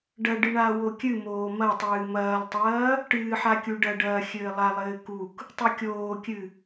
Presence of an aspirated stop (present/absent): absent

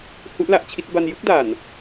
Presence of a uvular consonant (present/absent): absent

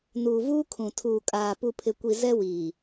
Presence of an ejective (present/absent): present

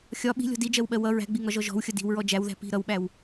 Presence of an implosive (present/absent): present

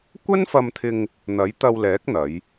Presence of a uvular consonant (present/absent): absent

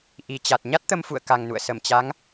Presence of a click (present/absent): absent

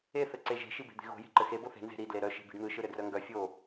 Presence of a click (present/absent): present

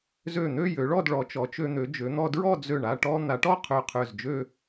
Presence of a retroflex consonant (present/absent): present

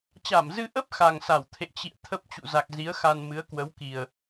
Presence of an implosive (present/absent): absent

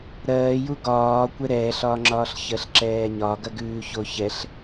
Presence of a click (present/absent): present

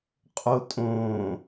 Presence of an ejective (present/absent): present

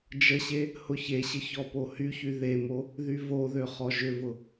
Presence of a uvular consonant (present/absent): present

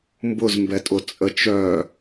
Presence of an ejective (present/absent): present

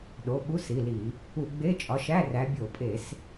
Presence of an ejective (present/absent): present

